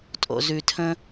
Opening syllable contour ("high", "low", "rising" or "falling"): low